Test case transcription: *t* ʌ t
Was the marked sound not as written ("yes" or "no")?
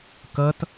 yes